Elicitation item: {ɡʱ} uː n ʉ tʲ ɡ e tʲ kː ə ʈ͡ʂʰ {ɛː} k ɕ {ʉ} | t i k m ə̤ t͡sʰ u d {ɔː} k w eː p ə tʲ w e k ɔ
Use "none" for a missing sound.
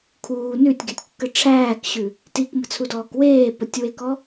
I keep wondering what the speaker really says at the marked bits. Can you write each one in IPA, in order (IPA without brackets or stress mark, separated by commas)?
kʰ, æː, ʉ, ɔː